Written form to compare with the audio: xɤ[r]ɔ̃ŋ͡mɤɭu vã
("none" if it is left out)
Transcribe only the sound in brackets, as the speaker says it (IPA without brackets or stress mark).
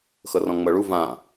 r